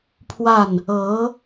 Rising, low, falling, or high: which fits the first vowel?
falling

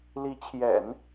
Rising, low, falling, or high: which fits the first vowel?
rising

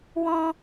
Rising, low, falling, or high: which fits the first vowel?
high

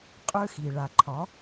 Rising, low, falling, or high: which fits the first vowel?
high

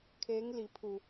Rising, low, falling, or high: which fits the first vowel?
rising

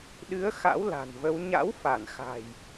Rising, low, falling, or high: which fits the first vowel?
rising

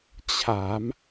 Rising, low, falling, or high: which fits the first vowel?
rising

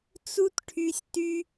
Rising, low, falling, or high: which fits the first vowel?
high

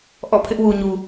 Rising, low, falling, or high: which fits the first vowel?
falling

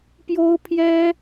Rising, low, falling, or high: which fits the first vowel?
high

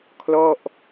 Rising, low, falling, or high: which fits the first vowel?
falling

